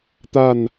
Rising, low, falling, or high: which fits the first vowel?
falling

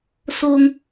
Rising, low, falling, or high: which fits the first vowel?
high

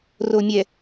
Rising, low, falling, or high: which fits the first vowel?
low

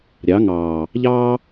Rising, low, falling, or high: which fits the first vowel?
rising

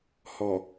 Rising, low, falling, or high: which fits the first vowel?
low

